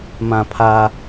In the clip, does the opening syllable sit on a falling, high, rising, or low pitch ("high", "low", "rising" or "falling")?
low